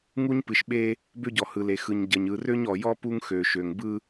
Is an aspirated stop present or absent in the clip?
absent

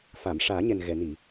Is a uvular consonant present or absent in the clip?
absent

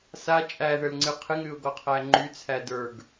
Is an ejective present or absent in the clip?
present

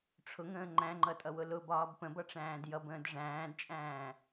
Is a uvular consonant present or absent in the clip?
absent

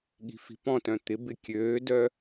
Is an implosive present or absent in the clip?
present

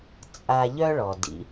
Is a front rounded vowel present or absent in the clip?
present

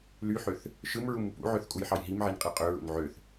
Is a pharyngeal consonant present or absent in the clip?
present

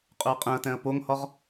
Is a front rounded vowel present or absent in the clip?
present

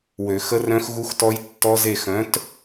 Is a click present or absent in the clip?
absent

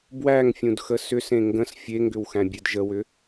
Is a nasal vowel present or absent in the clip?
present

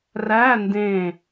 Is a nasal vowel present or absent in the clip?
present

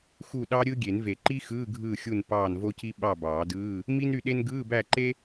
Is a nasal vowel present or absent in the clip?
absent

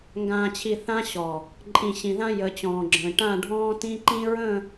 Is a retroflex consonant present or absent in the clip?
present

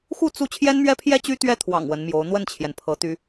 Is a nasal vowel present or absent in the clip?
absent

